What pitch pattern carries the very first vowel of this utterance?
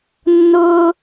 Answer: high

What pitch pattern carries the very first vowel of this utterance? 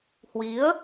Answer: rising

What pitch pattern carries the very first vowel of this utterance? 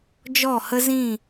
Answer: falling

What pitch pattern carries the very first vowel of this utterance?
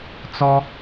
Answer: high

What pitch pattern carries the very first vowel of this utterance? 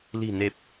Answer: low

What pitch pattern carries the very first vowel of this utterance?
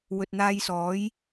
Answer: low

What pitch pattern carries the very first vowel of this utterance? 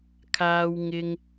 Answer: high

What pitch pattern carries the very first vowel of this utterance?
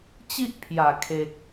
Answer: high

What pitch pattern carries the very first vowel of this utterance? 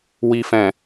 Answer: low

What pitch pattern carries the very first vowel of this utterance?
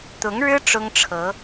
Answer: rising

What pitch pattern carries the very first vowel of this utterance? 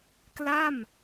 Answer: falling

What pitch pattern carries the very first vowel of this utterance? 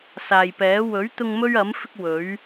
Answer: low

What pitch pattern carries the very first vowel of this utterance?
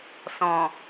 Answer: low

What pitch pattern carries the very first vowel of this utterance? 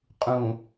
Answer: low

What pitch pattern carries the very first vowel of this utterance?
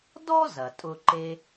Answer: high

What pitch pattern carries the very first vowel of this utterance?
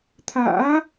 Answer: rising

